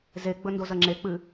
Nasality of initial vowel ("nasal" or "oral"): oral